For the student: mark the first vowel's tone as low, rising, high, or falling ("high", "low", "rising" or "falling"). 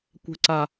low